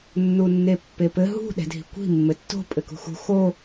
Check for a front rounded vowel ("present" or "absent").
absent